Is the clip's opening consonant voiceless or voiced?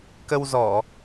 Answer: voiceless